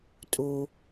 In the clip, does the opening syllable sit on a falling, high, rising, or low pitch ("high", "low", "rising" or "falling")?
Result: low